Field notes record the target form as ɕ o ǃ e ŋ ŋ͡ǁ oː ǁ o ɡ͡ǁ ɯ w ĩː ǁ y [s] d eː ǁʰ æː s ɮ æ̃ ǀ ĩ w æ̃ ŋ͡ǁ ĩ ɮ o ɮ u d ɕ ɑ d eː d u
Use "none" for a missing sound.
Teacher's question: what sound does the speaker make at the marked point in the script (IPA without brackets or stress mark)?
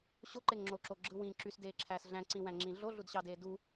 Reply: s